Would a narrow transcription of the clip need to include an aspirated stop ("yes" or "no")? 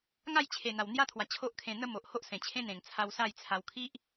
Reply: yes